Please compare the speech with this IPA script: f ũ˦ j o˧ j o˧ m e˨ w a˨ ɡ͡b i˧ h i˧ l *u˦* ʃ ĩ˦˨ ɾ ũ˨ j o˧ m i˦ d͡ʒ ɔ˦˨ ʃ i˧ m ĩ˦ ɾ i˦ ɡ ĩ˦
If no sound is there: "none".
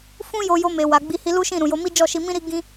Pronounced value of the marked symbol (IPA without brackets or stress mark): u˦